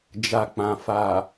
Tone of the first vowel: low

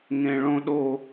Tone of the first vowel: low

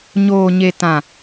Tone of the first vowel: low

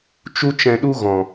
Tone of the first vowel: high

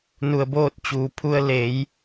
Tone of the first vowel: low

